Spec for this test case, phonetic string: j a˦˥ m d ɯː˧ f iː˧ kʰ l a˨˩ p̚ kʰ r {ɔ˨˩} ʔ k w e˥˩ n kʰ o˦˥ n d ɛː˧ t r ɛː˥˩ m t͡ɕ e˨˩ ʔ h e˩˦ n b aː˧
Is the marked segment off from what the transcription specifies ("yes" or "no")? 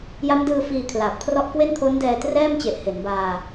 yes